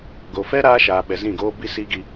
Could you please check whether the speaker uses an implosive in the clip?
yes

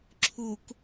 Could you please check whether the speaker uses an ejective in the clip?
no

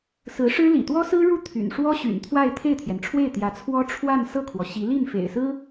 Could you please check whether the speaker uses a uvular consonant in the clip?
no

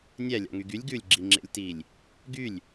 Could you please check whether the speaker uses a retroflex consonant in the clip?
no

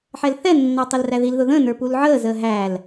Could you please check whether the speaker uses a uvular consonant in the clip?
no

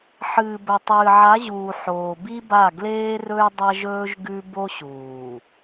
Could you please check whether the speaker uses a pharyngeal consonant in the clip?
yes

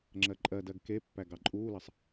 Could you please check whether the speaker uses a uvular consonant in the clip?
no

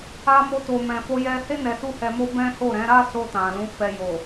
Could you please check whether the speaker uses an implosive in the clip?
no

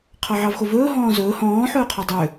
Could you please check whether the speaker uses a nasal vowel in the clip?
yes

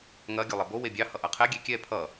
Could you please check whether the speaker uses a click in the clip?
no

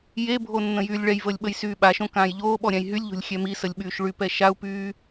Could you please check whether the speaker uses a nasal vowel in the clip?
yes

